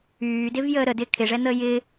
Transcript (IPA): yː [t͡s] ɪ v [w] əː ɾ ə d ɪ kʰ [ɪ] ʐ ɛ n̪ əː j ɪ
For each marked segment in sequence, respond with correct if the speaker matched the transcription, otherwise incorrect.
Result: incorrect, incorrect, correct

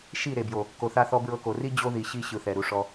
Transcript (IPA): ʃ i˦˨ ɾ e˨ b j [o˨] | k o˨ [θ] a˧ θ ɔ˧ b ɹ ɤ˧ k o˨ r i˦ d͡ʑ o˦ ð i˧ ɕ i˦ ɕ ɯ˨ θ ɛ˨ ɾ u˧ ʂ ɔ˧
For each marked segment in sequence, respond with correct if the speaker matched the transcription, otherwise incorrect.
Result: correct, correct

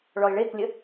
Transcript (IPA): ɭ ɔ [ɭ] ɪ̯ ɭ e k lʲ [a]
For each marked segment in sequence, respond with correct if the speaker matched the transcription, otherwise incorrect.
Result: incorrect, incorrect

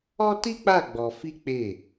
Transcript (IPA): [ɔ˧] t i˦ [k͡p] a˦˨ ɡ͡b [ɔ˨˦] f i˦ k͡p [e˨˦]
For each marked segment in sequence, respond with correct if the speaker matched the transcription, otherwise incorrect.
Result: incorrect, correct, incorrect, incorrect

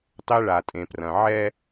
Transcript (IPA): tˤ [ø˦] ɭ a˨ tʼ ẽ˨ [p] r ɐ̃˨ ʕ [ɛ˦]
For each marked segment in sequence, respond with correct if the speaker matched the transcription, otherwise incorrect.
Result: incorrect, correct, correct

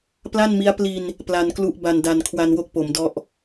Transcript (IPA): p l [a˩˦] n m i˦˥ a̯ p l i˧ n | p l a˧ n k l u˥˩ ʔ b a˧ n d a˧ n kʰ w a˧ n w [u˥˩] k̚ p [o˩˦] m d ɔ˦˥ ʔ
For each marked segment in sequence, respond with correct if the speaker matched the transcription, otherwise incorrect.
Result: incorrect, incorrect, correct

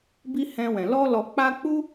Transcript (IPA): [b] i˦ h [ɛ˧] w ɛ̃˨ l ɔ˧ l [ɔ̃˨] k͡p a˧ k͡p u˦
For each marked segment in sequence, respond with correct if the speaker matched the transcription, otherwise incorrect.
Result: correct, incorrect, incorrect

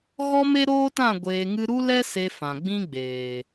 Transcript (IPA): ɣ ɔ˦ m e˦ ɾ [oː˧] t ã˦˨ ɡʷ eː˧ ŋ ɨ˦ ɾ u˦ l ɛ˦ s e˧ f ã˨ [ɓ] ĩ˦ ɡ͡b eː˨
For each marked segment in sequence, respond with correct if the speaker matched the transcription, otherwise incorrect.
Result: incorrect, incorrect

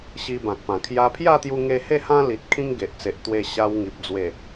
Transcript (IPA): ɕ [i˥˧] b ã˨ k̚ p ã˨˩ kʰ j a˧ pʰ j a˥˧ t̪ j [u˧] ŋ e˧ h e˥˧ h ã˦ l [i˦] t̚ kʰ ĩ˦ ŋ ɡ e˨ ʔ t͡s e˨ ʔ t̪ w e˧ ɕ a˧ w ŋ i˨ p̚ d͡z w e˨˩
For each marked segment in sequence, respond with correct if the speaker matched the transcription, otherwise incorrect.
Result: incorrect, correct, incorrect

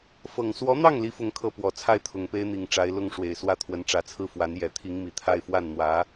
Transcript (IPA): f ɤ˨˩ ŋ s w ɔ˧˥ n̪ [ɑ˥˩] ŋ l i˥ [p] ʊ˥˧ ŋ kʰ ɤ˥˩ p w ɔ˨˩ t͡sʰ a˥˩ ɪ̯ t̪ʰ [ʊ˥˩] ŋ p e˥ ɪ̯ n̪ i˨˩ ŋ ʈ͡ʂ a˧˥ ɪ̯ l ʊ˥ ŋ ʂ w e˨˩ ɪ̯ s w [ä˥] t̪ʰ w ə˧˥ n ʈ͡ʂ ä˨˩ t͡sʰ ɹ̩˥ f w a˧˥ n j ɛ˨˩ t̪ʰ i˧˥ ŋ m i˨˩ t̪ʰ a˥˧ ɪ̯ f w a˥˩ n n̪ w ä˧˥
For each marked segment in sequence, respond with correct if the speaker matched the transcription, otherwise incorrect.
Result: correct, incorrect, incorrect, correct

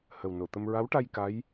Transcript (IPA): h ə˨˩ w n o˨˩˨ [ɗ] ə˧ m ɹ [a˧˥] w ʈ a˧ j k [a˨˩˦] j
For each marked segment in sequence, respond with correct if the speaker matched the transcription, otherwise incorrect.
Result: incorrect, correct, incorrect

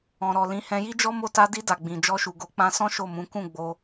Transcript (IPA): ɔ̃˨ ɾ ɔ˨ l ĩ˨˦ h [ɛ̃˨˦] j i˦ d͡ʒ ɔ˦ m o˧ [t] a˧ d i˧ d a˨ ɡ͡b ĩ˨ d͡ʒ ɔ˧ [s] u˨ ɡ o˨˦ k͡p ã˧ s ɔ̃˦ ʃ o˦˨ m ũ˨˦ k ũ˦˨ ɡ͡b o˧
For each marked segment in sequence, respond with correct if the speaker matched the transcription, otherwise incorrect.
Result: incorrect, correct, incorrect

